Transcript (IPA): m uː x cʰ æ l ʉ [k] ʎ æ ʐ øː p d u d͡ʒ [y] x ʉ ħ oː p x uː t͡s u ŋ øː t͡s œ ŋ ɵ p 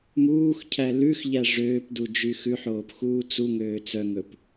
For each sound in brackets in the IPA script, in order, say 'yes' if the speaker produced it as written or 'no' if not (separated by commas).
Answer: no, yes